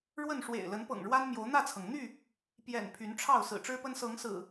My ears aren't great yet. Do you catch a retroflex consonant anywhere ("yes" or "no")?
yes